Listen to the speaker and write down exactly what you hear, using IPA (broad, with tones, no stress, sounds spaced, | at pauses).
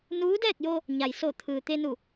n uː˧˥ d ɛː˥˨ k̚ j o˧ | ɲ a˩ j s o˧˩ t̪ʰ ɯː˩ t̪ e˧ n u˧˩